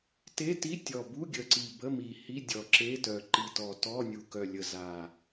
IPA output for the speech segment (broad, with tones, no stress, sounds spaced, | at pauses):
t e˧˥˧ t i˧˥˧ tʲ ɔ˨˩ b u˧˥˧ ɡʲ ə˨˩ ǀ i˨˩ b ə˧˥˧ m i˨˩ h i˧˥˧ dʲ ɔ˨˩ ǁ e˧˥˧ t œ˨˩ ǃ i˨˩ t ɔ˨˩ t ɔ˧˥˧ nʲ u˨˩ k œ˨˩ lʲ ə˨˩ z a˨˩